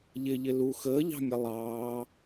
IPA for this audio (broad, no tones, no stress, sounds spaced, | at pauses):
ʎ ɪ ʎ ɪ l u x əː ʎ ɑ̤ mʲ ʌ lˠ ɑː